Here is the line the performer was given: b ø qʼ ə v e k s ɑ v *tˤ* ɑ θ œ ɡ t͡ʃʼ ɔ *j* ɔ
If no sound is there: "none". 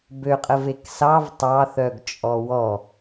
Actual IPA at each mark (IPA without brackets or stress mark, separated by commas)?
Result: tˤ, w